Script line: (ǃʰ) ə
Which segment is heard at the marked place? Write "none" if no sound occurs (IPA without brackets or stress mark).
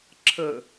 ǁʰ